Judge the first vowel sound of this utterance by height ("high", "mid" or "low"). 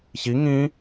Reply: high